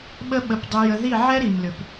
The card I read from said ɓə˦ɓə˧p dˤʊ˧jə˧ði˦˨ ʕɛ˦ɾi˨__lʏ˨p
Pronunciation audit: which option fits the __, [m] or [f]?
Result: m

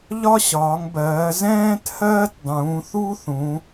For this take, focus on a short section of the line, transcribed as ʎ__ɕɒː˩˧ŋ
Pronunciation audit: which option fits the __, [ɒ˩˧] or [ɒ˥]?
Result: ɒ˥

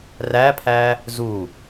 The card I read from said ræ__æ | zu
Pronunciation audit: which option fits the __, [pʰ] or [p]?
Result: pʰ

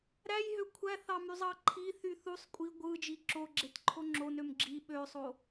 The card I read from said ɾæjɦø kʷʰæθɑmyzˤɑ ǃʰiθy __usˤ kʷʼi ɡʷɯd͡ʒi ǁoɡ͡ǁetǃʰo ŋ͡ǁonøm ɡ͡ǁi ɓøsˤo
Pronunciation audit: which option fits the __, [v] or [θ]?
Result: θ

